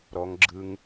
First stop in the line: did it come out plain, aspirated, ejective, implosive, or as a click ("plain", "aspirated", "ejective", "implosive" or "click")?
click